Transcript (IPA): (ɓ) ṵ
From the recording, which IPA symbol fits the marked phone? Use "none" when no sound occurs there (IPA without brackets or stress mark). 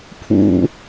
pʰ